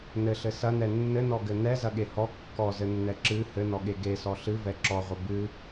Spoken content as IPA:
n ɘ ɬ ɘ s ɐ n ɛ nː ɘ n ɔ ɡ ɘ n ɛ z ɐ ɠ e h ɔ kː ɔ z ɘ nː ɛ ǁ ɨ h ɘ n ɔ ɠ e ɡ e s ɔ ɬ ɨ v ɛ ǁ ɔ ʁʷ ɘ b ɨ

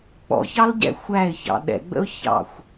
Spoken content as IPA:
k͡p ɔ̰ ç ɑ l ɟ ɛ̰ xʷ æ ɪ̯ ç ɑ̰ ɗ ɛ̰ ɡ͡b ə̰ ʊ̯ ç ɑ̰ xʷ

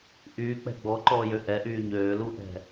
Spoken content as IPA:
ʔ yː k͡p ɛ̤ ɡ͡b ɔ ǃ ɔː j ø ʔ ɛ ʔ yː ɲ øː l u ʔ ɛ̤

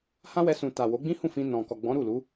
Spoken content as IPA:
h ã˦ w ɛ˧ s ũ˨ t a˨ w o˨˦ ɡ͡b ĩ˦ h ũ˦˨ f ĩ˧ n ɔ̃˨ k ɔ˨ ɡ͡b ɔ̃˨˦ ɾ u˦˨ l u˨˦

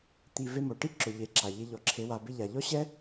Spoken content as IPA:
t̪ i˨ v e˧ m o˨ ʈ i˦ ǁ ʊ˨ ʎ e˨˦ ǁ a˨ ʎ ɪ˧ ʎ ɔ˨ ǁʰ e˧ w a˧ b ɪ˧ ʎ a˨ ʎ ɔ˦ ɕ ɛ˦

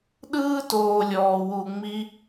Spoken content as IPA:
ɗ ɯː˦ t oː˨ lʲ ɔː˨ w u˧ ŋ͡m i˦

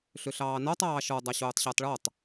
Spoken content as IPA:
ɬ ʏ ɬ ɑː n ɔ tˤ ɑː ʃ ɔ dˤ ɑ ɕ oː tˤ ɕ əː tˤ ɭ ɔ tˤ

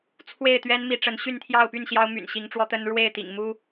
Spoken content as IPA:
t͡sʰ w e˥˨ ɪ̯ t̪ ɥ ɛ˦ n m i˨˦ ʈ͡ʂ ə˨˦ n ɕ y˥˨ n t̪ʰ j ɑ˥˨ ʊ̯ p y˥˨ n ɕ j ɑ˦ ʊ̯ m y̰˨˩ n ɕ i˨˦ ŋ ʈ͡ʂ w ɔ˦ t̪ ə˦ n ɻ w e˥˨ ɪ̯ t̪ ḭ˨˩ ŋ m u˦

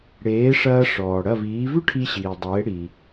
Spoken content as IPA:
ɽ eː˩˥ ʂ ɐː˧ ʂ ɔː˩ ɽ ɐ˥˩ v iː˩˥ v ʉ˥ ʈʰ i˧ ɕ iː˩ dˤ eː˩˥ ɽ i˩

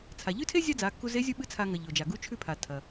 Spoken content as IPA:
t͡sʰ a˩ ʎ ʉ˥ tʰ e˥ zʲ a˥ d͡z a˩˧ kː u˧ z e˧˥ zʲ u˥ ɓ ɨ˥ t͡sʰ a˧ ŋ ɐ˩ ʎ o˩ d͡ʒ a˩ ɡ u˧˥ t͡ʃʰ ʉ˧ pʰ a˩ tʰ ɐ˩

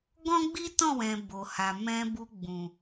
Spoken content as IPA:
ɡ ɔ̃˦ ɡ͡b i˦ t ɔ̃˦˨ w ɛ̃˨ b o˨ h a˨ m ɛ̃˧ b u˧ ɡ͡b ũ˨

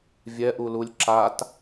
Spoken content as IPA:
vʲ ɛ ʔ u l u lʲ ǁ a t

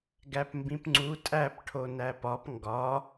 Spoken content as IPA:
ɡ æ p m b ĩ p ŋ͡ǀ u tʼ æ p ʈʰ o n æ p ɒ p ŋ ɡ ɒ

